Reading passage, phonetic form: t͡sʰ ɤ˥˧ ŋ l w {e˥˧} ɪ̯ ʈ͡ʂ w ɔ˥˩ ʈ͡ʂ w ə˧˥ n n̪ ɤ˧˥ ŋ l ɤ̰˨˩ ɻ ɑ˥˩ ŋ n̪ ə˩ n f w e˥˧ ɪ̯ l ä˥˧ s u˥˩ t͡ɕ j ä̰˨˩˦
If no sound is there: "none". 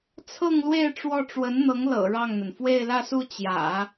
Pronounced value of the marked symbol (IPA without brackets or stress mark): e˥˧